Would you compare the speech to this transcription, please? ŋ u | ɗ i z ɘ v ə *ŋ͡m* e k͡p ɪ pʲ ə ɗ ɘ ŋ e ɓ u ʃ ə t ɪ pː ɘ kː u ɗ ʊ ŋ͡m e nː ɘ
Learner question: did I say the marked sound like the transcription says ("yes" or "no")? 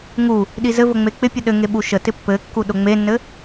yes